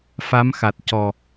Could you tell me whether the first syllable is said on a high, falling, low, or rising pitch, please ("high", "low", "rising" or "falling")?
rising